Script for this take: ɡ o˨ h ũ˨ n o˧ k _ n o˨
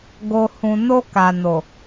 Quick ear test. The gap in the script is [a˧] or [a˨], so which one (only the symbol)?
a˨